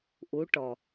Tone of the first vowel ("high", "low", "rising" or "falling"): rising